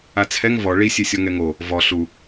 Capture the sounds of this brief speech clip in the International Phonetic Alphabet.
at͡sʰɛŋ vɔ ɭisʲesʲɔ ŋɛŋo | vɔ ɬu

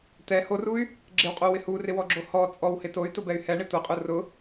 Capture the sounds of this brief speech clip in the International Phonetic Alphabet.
t̪ɛ horuy̯ | ɡ͡ǁɪwqʼowɪ hurɪwɔɡ͡ǁo hɔ t͡sʼɔwhɪ toy̯tʊbɛy̯ hɛɳɪ t̪ʊqʼʊ rʊ

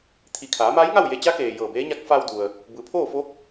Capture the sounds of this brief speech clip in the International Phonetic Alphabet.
t̪ʰi˧˩ kʰaː˩˧maː˧˥jŋa˥˨w je˧t͡ɕa˧˥keː˩ jɤː˧˩beː˧˥ɲa˧˥k̚ fa˧wdu˩ə̯ | bɯː˩˧pʰoː˥˨fo˧˥k̚

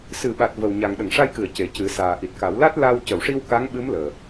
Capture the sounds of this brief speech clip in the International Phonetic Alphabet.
sɨ˨˩˨ɓa˨˩t̚ və˨˩wɲa˨˩ŋ ɗə˨˩˨ŋʂa˧jkɨ˨˩˨ə̯ ce˨˩cɨ˨˩˦saː˨˩ ʔi˨˩t̚ka˨˩˦wla˦˥t̚ la˧w cə˨˩˨wʂi˧w ka˧˥ŋɓɨ˧˥mləː˨˩

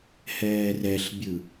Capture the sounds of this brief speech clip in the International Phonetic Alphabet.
hɛːrɛɬbʲɯ

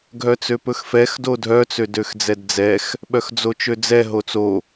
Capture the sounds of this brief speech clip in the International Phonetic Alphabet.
ɡʱœt͡søpɵxfɛx dodʱœ t͡sødøxd͡zɛdd͡zɛx | ɓœxd͡zot͡ʃød͡zɛ ɦot͡so

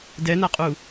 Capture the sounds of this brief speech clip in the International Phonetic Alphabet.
dɛnaqʼu

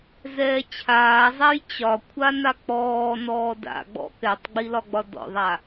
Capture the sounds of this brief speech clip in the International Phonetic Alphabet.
zɛːt͡ɕʰaːzˤaj t͡ɕɒ kʷʰanak͡pɔː nɔːda̰ɡ͡bɔ̰ kɛtˤɡ͡bilɒɡ͡bɒ dɔ̰ðˤa

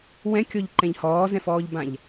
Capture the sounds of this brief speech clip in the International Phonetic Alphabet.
wɛ̃kʲɔʎǃɛ̃ʎ hɔːzɛ̃fɔːʎbãʎ

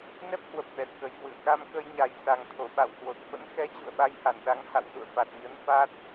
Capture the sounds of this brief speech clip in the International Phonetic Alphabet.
nɛ˦˥p̚hwə˨˩p̚ ɓɛ˨˩t̚kə˨˩jkwɨ̰˧˨ə̯ ka˧mkə˧jɲa˨˩j sa˨˩ŋt̪ʰo˧˩ ɓa̰˧˨whwo˨˩t̚fə̰˧˥n xɛ˨˦ t͡ɕṵ˧˨ə̯ɓa˧jha˧˩n ɗa˨˦ŋ ha̰˧˨wzṵ˧˨ə̯ fa˨˩t̚ɲə˨˦n fa˦˥t̚

